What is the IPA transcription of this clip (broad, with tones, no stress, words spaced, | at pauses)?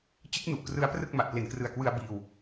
t͡ɕɯ˦˥k̚nu˨˩ʔkrɯ˦˥a̯prɯ˥˩k̚ ma˨˩ʔple˨˩nkrɯ˨˩a̯kwɯ˧a̯ biː˧w